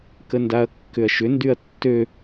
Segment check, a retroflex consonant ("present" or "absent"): absent